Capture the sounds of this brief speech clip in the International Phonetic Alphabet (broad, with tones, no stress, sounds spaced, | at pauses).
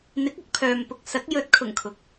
n̪ ɪ˨˥ k̚ ɐ˨ k̚ pʰ œː˨ m p ʊ˨ k̚ s ɐ˨˥ k̚ j ɵ˨˥ t̚ kʰ ʊ˨˩ ŋ kʰ ʊ˨˥ k̚